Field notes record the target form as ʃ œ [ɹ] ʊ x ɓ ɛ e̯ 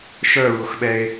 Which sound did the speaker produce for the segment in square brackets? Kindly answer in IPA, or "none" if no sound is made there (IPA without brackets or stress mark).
ɹ